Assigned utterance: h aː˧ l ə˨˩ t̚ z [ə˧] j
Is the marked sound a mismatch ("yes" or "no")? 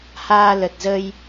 no